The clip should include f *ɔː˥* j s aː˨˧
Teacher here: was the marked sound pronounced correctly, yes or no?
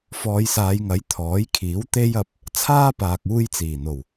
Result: no